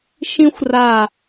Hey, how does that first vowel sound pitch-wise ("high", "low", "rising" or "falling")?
high